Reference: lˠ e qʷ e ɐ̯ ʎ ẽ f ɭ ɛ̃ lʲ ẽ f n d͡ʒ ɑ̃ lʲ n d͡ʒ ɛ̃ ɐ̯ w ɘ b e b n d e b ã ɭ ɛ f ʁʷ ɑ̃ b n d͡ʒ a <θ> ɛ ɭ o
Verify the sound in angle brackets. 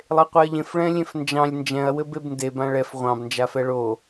incorrect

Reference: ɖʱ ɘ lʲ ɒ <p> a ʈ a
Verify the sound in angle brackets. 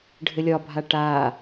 incorrect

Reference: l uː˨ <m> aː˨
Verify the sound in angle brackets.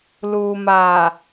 correct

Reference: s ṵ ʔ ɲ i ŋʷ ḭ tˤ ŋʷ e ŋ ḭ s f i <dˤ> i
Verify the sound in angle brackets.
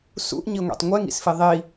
incorrect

